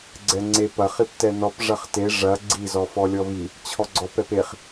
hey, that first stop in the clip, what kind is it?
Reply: click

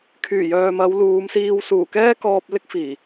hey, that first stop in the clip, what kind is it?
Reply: aspirated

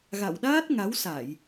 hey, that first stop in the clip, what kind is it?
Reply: implosive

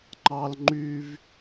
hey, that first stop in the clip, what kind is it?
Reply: click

